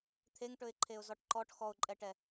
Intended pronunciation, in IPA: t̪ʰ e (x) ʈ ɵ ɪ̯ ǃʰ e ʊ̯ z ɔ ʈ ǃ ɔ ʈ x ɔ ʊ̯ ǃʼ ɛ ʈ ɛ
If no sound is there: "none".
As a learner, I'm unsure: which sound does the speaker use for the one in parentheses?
ŋ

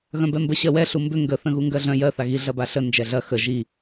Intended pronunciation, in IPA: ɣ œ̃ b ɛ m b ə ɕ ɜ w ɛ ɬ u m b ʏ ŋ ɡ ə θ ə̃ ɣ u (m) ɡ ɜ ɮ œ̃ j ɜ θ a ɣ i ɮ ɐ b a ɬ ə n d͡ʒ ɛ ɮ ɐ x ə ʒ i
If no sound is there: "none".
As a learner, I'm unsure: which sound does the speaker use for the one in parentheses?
ŋ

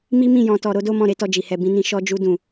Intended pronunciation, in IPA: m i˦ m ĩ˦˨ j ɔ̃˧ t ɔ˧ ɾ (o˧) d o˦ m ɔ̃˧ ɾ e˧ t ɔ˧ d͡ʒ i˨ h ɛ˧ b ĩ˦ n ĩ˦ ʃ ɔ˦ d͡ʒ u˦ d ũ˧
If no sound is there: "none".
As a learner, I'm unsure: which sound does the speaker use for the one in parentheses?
o˦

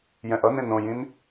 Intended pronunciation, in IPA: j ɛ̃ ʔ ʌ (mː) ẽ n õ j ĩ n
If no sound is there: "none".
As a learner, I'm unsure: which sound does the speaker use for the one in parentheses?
n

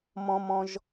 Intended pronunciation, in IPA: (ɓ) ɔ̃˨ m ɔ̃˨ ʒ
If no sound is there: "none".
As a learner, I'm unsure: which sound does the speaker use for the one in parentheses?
m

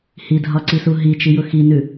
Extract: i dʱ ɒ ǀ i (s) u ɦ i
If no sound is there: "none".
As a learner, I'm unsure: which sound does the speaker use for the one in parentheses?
s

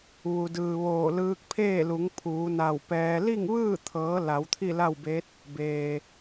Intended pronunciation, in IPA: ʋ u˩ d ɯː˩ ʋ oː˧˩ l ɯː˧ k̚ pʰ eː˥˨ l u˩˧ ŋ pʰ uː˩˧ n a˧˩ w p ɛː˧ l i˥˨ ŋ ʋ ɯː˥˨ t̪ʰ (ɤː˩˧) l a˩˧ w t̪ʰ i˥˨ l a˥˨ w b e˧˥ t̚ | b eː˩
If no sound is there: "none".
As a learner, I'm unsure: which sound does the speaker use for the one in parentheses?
ɤː˩˧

